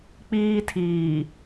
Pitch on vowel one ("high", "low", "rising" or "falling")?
high